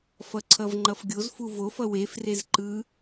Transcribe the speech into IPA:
f ʌ ǀʰ ʌ v ŋ͡ǃ ʌ f ɡʲ o z f u v o f ʌ w e f r e z ǃ ɯ

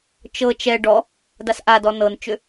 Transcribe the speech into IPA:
t͡ʃ ɤ t͡ʃ ɛ ɖ ɔ | d a s ʔ a d ɔ n ɤ n t͡ʃ ʏ

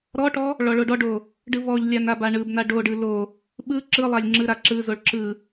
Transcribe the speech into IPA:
ɾ ɔ ʈ ɔ | ɭ ɔ ɭ o ɖ ɔ ɖ o | ɖ ɯ v ɔ ʎ lʲ a n a b a ɳ ɯ b n a ɖ o ɖ ɯ l o | ɓ ɯ ǁ ɯ lˠ a lʲ ŋ͡ǁ ɯ ɾ a ǁ ɯ z o ɭ ǁ ɯ

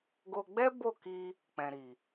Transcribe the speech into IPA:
ɡ o˧ ɡ͡b ɛ˦ b o˦˨ k i˧ | k͡p ɛ̃˨ ɾ i˨

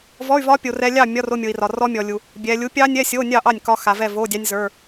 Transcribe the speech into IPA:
v ɔ˧˥˧ y̯ v ɒ˦˥ pʲ o˨ r ɛ˦˥ lʲ ɑ˥˨ mʲ ɒ˧˥˧ r o˧˥˧ mʲ o˨ i̯ r ɒ˨ r ɔ˦˥ mʲ ɔ˨ lʲ u˨ | bʲ ɛ˨ lʲ u˨˥ pʲ ɑ˦˥ nʲ ɛ˧˥˧ sʲ o˧˥˧ nʲ ɑ˥˨ ʔ ɑ˥˨ nʲ k ɒ˦˥ x a˨ v ɛ˥˨ v o˧˥˧ dʲ ɑ˦˥ nʲ z ə˞˧˥˧

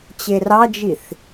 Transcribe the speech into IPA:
t͡ɕ e r ɑ d͡ʒ i θ

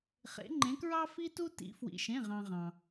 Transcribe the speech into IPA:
χ ḛ˨˦ ŋ͡ǃ ẽ˨˦ k ɹ ɑ˦ f i˦ t u˦ t ḭ˨˦ f w ḭ˩ ʃ ẽ˩˧˩ ʁ ɑ̃˩ ʁ ɑ̃˩

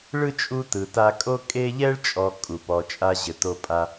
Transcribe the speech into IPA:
ɭ ɯ˥ t͡ʃʼ u˦ t ɯ˨ t a˥ kʼ o˥ kʼ e˥ ʎ ɛ˥ ɭ t͡ʃʼ ɔ˨ kʼ u˩ p ɔ˨ t͡ʃʼ a˥ ʑ ɘ˨ t o˦ pʼ a˦

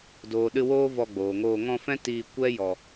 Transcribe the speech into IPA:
d oː˨ ɗ ɨ˧ w oː˦ v ɔ˧ ɡ͡b oː˨ ŋ oː˧ ŋ ɔ̃˧ f ɛ̃˦ t iː˧ kʷ ɛ˦ j ɔ˧

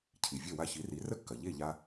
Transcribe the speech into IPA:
cʰ i˩ vʲ ɐ˥˩ w a˧ ç i˩˥ r i˩˥ r ə˥ kː ɐ˩ ʎ e˥˩ ʎ a˧

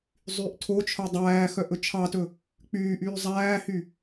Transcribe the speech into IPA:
zˤ y ʔ tʰ o t͡ʃʰ œ dˤ æː x œ ʔ ɵ t͡ʃʰ ɑ t ɵ | k͡p yː ʔ yː zˤ æː h y

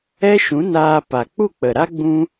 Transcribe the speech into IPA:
ɛ˦ ʃ ũ˨˦ n aː˧ p a˨ k͡p u˦˨ k͡p ə˨ ɾ a˦ ɡ͡b ũ˦

